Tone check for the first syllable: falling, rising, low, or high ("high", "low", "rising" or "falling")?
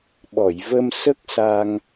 low